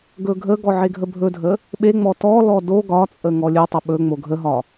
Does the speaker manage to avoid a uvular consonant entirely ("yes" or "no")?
yes